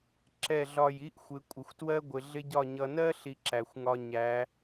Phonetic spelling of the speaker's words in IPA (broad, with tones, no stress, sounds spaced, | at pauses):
ǁ ɛ˦˨ ɮ ɒ˦˨ j i˦ ʔ xʷ ɪ˨˦ kʷʼ ɪ˨ xʷ t w ɜ˦ ɡʷ ɪ˨ ɮ ɪ˦ ɟ ɒ˦˨ ɲ ʌ˨ n ɜ˦ ɬ i˦ ǁ æ˨ xʷ ŋ ɒ˦ ɲ æ˨˦